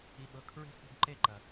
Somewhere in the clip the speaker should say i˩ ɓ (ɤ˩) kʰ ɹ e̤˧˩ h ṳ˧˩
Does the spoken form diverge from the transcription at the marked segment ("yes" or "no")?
no